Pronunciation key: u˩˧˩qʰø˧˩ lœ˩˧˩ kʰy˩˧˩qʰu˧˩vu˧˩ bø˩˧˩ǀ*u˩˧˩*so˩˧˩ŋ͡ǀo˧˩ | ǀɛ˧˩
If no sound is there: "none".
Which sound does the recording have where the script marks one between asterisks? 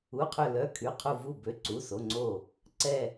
u˩˧˩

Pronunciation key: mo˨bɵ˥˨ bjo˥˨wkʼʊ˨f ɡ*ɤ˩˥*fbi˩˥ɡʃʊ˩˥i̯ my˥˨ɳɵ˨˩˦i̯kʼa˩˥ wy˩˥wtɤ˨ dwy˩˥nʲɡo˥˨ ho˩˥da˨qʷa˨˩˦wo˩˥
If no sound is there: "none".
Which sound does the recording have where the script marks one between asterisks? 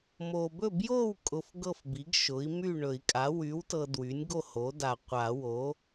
ɤ˥˨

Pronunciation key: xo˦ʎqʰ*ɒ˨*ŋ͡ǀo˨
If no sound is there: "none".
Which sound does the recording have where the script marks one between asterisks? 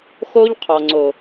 ɒ˨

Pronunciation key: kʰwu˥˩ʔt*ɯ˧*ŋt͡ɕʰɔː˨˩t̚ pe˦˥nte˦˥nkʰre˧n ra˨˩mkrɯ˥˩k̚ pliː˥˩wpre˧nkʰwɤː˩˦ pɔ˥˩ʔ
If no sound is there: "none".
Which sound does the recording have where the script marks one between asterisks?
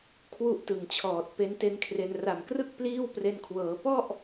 ɯ˨˩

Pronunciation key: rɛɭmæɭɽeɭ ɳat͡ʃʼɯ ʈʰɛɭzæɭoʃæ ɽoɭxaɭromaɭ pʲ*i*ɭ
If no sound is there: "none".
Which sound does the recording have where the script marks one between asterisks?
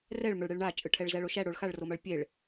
e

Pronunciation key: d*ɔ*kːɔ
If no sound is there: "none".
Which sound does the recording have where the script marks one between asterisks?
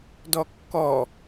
ɔ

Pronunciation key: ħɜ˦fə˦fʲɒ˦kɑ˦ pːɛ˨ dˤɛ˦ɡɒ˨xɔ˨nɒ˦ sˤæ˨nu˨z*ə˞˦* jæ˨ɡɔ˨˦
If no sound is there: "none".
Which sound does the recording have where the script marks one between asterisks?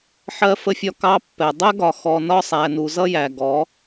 ʌ˦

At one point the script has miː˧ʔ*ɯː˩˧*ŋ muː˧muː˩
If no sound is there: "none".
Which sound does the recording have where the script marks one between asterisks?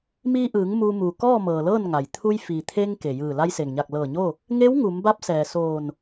ɯː˩˧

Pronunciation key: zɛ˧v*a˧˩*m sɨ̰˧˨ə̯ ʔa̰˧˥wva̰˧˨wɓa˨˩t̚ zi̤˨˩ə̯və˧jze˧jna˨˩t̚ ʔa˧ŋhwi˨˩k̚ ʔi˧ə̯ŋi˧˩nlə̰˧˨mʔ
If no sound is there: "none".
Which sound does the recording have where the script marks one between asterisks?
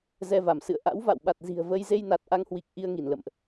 a˧˩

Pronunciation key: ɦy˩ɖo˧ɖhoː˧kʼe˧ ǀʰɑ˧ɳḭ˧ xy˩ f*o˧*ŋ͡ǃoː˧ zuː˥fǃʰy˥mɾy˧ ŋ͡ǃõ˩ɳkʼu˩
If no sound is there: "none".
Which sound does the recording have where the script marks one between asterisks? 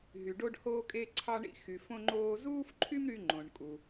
õ˧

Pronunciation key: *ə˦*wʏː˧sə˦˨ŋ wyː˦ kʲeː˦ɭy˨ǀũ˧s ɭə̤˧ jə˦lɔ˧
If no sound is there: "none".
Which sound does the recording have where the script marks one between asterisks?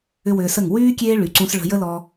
ʏ˦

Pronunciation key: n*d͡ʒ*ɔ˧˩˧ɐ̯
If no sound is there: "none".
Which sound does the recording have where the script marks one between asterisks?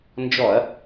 d͡ʒ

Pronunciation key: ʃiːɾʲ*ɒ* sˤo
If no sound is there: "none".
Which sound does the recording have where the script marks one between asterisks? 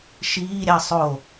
ɑ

